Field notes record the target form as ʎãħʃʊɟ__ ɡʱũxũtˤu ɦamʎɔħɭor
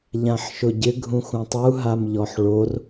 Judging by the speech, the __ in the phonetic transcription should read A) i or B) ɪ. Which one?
B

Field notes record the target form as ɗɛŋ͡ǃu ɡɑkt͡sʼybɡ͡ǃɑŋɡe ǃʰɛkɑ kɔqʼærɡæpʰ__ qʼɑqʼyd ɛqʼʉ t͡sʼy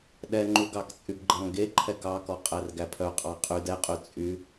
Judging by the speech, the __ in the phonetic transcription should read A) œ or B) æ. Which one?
A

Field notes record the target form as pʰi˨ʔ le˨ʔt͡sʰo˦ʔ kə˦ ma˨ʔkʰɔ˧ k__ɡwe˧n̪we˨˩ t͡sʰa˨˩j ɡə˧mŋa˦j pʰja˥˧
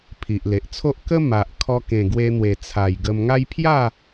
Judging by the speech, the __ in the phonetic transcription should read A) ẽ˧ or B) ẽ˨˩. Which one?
B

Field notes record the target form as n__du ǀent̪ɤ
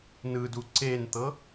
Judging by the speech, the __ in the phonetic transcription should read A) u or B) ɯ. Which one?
B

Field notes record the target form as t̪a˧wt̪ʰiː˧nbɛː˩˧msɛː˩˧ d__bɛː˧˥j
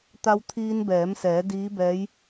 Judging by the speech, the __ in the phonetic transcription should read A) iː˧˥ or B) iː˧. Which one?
A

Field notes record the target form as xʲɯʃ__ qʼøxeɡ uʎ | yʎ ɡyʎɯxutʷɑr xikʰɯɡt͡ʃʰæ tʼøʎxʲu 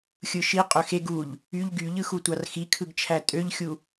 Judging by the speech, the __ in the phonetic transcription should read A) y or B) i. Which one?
B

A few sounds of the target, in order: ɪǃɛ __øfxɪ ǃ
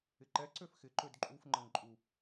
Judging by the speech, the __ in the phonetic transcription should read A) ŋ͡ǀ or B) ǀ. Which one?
B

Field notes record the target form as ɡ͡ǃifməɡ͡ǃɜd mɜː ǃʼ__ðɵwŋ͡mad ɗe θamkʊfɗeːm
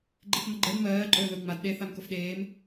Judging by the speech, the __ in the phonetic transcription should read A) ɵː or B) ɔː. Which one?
A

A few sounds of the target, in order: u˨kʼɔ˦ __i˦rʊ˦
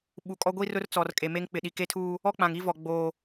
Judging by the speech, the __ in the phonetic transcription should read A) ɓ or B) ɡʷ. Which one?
B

